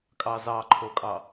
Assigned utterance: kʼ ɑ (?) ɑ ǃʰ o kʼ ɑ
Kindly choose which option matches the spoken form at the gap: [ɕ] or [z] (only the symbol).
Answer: z